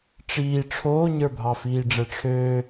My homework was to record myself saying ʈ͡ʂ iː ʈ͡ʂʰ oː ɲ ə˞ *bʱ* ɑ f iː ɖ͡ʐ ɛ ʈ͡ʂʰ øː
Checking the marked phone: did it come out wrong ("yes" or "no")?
no